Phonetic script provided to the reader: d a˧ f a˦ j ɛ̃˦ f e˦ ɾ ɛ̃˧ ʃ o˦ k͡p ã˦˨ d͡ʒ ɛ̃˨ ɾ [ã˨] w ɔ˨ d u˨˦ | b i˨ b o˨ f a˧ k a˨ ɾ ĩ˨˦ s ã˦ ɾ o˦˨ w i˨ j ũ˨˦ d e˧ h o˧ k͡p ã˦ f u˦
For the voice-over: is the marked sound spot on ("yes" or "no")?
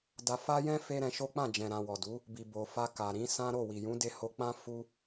yes